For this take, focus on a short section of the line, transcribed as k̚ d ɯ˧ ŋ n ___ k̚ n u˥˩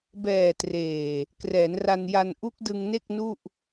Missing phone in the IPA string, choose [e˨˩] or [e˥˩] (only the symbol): e˥˩